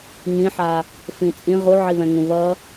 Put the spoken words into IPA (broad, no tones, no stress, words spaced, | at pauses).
ŋĩħa | fĩt͡sʼĩ ʁuʕiβɛ̃ŋũ βʌ